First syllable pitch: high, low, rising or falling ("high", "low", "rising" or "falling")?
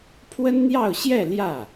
high